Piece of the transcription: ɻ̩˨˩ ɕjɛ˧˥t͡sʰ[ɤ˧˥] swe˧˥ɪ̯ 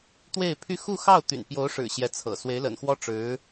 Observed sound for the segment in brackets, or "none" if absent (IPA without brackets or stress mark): ɤ̰˨˩